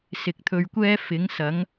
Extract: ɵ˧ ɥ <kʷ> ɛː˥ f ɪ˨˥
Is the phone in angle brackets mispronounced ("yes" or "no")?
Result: no